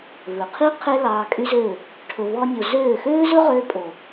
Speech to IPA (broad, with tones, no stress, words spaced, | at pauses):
vɵ˨qʰi˦ qʰe˦ lɑː˧kʼy˦zø˦˨ | ʈʰɵ˧vɔ˦nʲo˧ zøː˦˨ xøː˦zɵ˦ʁøː˧pʼo˨